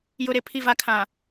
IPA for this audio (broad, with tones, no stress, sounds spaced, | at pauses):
j ʊ˨ ɾ e˨ pʰ i˨ v a˨ kʰ ã˨